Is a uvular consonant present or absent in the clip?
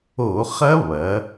present